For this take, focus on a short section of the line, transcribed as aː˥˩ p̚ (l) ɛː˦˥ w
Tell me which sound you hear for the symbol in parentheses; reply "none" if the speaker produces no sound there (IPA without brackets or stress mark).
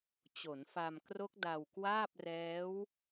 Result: r